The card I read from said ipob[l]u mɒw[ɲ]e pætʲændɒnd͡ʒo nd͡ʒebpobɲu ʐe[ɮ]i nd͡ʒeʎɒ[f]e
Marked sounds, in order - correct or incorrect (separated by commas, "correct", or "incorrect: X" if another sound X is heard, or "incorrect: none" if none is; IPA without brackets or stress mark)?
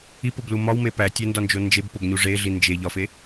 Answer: correct, incorrect: m, correct, correct